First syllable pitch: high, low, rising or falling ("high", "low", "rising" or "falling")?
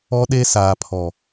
high